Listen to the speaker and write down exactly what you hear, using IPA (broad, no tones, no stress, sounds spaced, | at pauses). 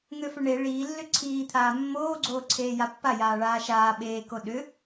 ŋ ø f ʏ ɳ e ɭ iː lː ʏ ǀʰ iː t̪ʰ aː mː oː ɡ͡ǀ oː ǀʰ eː j a pː a j aː ɭ aː ʃ aː ɓ eː k o ɗ ʏ